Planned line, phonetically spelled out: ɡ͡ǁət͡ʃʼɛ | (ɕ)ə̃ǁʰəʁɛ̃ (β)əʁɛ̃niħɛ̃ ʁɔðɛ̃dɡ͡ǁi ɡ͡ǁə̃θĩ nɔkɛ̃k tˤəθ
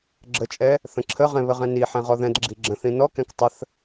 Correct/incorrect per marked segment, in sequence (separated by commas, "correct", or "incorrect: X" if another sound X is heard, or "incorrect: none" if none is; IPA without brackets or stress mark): incorrect: θ, correct